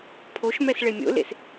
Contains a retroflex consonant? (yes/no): yes